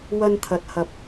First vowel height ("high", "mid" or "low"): low